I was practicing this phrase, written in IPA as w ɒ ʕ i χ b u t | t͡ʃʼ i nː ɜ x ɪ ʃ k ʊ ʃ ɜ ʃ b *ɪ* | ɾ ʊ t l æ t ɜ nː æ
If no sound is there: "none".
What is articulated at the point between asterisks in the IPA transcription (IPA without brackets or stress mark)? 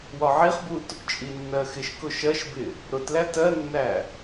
ɪ